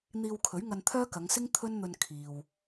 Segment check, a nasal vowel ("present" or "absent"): absent